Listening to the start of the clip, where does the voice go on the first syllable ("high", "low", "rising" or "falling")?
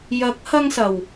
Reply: rising